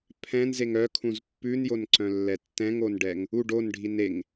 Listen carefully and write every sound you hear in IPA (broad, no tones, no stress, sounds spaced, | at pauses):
pʰ ɛ̃ n z e ŋ œ kʰ ũ z pː ʉ n j o n ǀ œ̃ lː ɛ tː ɛ̃ ŋ o n ɖ ɛ ŋ | u ɖ o n ɖʱ i n e ŋ